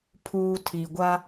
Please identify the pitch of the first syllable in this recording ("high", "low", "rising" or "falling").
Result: low